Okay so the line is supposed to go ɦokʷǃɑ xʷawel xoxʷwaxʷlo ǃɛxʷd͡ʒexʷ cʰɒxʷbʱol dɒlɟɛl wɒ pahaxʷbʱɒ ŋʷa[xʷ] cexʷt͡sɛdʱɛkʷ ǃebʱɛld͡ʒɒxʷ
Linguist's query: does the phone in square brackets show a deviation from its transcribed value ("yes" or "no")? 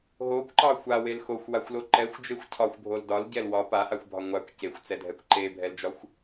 yes